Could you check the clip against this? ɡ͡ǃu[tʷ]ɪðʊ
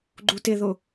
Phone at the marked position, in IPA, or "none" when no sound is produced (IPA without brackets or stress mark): t